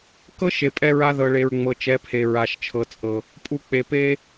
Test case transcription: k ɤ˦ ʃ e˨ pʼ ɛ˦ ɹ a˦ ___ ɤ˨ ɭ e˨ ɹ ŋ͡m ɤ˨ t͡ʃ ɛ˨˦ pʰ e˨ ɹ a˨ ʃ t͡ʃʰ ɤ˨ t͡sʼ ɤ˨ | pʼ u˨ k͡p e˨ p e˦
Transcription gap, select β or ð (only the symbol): ð